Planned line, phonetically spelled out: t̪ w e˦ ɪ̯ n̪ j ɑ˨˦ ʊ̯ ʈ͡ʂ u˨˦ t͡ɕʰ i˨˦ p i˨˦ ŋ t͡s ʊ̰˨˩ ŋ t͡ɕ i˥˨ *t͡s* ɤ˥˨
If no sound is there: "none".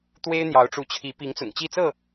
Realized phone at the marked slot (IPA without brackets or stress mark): t͡s